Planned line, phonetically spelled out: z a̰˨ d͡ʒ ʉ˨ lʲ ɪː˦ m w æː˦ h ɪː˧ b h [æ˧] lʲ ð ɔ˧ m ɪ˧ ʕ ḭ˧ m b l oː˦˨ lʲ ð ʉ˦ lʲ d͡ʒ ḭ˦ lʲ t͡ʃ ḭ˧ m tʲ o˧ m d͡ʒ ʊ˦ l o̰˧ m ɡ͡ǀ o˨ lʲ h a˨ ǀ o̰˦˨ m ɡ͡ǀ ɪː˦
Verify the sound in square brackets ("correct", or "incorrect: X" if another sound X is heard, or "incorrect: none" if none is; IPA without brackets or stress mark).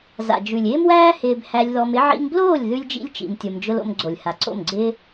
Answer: correct